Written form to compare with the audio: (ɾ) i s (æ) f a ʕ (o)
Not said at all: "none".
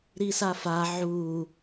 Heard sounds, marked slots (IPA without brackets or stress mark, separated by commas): ɾ, a, u